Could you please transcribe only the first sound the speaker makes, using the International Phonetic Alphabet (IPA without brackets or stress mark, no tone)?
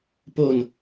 p